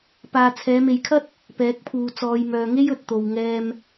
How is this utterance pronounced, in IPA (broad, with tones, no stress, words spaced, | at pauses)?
paː˨t͡sʰɛː˨˧me˨jkʰɐ˥t̚ | pɛː˨˥k̚pʰuː˨ t͡sɔː˨jmœː˨ŋe˥j ɵ˧t̚ t̪o˨wŋɛː˧m